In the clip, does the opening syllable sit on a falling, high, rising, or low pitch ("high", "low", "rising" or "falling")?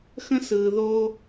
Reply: high